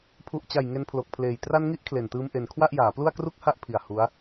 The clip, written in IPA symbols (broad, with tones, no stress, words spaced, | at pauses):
pʰu˨˩ʔt͡ɕa˨˩j ŋe˧npʰlo˨˩k̚pʰleː˨˩j tra˧nŋi˦˥ʔ kʰle˨˩ntɯː˧m ʔe˩˦n kʰwa˥˩ʔjaː˩˦plu˥˩a̯ kru˥˩k̚ha˥˩ʔpʰi˨˩a̯ hu˦˥a̯